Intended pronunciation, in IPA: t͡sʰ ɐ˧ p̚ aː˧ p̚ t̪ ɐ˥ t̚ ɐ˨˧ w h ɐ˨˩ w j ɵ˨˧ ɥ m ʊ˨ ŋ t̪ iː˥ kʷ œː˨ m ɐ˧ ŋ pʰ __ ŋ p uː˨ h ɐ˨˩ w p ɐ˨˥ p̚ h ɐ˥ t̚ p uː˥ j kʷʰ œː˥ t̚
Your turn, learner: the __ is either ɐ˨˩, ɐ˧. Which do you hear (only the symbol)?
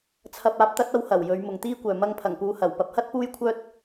ɐ˨˩